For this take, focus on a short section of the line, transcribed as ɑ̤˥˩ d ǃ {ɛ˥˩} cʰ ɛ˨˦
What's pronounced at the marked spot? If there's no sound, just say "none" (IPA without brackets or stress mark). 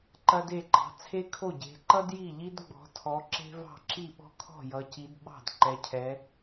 ɛ˨˦